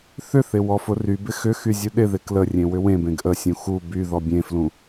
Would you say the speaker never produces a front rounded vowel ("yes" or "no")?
no